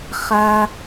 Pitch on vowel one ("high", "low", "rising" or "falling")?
high